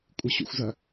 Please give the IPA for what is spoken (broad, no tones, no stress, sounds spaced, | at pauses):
kʷʼ ɨ ɕ ṵ xʷ z ɐ